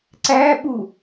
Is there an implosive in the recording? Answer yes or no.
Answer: yes